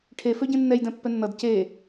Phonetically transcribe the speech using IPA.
ʈʰ e f ø ɟ ẽ nː ɛ j d ɛ̃ pː ɛ nː ʌ d c e

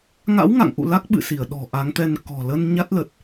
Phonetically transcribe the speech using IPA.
ŋ a̰˧˥ w ŋ a̰˧˨ ŋ ʔ ṵ˧˨ l a˦˥ k̚ ɓ ɨ̰˧˨ s i˧˩ ə̯ ɗ ɔ̤˨˩ ʔ a˨˦ ŋ t̪ ɛ˧ n k ɔ̤˨˩ l ə˧ n ɲ a˦˥ t̚ l ə˨˩ t̚

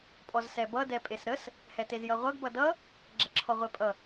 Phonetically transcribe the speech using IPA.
pʼ ɔ z s ɛ b ʌ d ɛ pʼ e s ɾ ə s | h ɛ t e z j ʌ ʁʷ ʌ ɡ b ʌ d ʌ | ɡ͡ǁ ɛ ǁʰ ɔ ʁʷ e pʼ ʌ

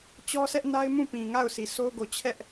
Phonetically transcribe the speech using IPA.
t͡ɕ ɔ˦ s ɛ˦ ʔ n a˦ ɪ̯ m ũ˦˨ p ĩ˨ ŋ a˦˨ ʊ̯ s i˨ sʰ o˦ ʊ̯ ɡ o˨ t͡ɕʰ ɛ˦ ʔ

